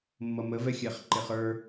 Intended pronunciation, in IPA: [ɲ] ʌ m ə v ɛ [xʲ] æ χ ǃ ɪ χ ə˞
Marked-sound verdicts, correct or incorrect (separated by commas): incorrect, correct